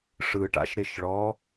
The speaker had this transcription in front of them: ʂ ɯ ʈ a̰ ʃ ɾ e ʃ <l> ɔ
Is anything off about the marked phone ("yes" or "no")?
yes